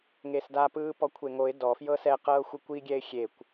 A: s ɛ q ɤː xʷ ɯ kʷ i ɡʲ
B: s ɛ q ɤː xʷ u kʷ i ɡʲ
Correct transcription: A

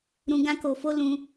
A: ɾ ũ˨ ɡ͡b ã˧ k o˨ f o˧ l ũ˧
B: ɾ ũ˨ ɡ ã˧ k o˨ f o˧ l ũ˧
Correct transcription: B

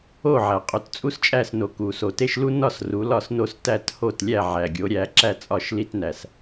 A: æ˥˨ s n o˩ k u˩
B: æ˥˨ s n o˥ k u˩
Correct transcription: A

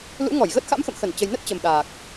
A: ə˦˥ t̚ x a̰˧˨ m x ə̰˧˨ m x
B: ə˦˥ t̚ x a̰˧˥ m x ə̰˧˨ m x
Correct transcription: B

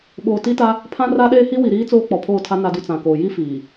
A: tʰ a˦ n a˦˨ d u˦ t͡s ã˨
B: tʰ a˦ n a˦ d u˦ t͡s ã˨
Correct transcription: B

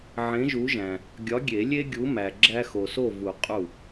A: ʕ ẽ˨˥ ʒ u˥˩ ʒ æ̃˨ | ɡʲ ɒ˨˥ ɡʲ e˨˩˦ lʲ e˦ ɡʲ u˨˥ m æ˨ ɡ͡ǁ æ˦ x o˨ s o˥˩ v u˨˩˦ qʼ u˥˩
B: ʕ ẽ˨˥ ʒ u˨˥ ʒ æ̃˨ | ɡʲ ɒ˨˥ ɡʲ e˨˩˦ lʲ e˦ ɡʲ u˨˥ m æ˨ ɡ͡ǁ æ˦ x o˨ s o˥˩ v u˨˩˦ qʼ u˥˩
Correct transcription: B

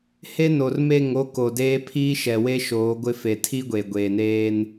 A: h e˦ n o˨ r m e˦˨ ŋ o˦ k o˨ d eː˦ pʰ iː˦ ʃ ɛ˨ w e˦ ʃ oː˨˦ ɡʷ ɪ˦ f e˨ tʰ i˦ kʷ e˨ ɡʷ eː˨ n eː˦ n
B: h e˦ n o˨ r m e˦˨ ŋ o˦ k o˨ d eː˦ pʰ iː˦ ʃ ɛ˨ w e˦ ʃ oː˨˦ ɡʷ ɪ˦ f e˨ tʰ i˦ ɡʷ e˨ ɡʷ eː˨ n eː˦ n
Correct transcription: B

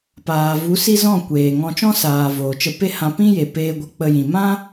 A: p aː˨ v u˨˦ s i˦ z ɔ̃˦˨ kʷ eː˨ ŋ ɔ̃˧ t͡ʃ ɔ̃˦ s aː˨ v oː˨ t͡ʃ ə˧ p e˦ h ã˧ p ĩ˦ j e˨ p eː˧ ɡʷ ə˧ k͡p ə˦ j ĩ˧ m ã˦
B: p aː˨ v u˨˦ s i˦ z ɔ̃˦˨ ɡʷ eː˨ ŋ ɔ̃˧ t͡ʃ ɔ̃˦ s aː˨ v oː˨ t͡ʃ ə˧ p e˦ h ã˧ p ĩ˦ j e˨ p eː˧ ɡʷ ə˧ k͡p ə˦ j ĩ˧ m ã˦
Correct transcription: A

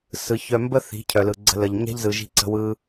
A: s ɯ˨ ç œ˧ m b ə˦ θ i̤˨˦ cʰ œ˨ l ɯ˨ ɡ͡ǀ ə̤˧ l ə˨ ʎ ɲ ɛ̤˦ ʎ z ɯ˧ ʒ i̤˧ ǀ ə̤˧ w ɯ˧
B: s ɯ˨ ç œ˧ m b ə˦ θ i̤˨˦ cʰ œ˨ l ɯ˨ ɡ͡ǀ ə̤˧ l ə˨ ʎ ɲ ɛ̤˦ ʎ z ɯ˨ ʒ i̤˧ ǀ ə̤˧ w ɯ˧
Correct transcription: B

